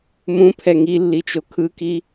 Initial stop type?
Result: aspirated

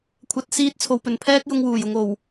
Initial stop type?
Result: aspirated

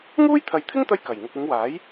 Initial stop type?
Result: aspirated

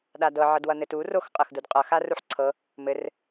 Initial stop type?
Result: implosive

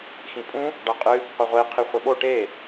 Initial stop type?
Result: ejective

